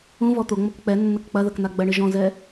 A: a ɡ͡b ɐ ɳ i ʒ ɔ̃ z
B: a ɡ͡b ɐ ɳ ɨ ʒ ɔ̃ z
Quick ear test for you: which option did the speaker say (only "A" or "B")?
B